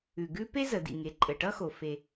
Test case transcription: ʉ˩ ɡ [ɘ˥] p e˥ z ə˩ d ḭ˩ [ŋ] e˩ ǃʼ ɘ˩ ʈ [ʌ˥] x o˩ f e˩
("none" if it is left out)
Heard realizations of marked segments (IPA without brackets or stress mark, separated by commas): ʉ˥, ŋ, ʌ˥